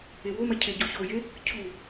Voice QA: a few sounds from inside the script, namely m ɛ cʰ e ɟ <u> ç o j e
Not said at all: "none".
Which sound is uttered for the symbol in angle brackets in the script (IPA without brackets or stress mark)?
o